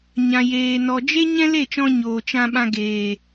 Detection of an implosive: present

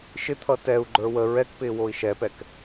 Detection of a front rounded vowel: absent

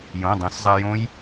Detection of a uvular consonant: absent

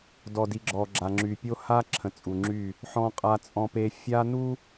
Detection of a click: present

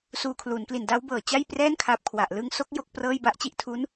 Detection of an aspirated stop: present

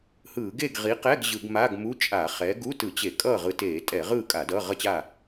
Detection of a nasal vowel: absent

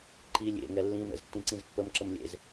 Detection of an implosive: absent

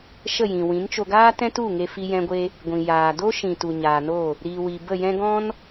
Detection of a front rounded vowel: absent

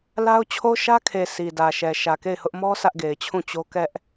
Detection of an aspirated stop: present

